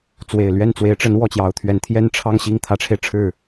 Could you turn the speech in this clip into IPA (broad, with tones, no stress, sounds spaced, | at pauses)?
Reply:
t͡s w e˨˩ ɪ̯ l ɥ ɛ˥˩ n t͡s w e˧˥ ɪ̯ ʈ͡ʂ ə˧˥ n w ɔ˥˩ t͡ɕ j ɑ˧˥ ʊ̯ t̪ʰ ɥ ɛ˧˥ n t̪ʰ j ɛ˥˧ n ʈ͡ʂʰ ɑ˥˧ ŋ ɕ i˥˩ ŋ t̪ʰ ä˧˥ ʈ͡ʂʰ e˧ ɪ̯ ʈ͡ʂʰ ɻ̩˥˩